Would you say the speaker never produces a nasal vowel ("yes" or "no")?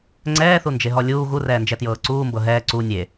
yes